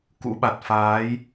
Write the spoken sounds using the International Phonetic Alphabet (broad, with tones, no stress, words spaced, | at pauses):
kṵ˧˥ɓa˨˩t̚ faː˨˦j